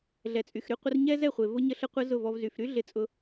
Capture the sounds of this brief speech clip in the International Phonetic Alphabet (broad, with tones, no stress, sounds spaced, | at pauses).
ɮ ɛ˨ t͡sʼ y˨ x ɾ y˧ qʷ ə˧ r ɲ ɛ˦ z ɛ˦˨ χʷ e˨ v ʊ˧ ɲ ə˧ ɬ ə˧ qʷ ɪ˧ z ʊ˦˨ v ɔ˦ v z y˧ f ɾ y˦ ɮ ɪ˧ t͡sʼ ʊ˧